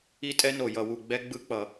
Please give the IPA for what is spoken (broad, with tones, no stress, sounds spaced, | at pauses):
i˦˥ tʼ ɛ˦˥ n o˧˩ j ʌ˧˩ w u˧˩ ɡ͡b ɛ˦˥ ɡ͡b ɯ˦˥ k͡p ʌ˧˩˧